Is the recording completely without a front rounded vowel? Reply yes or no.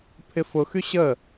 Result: no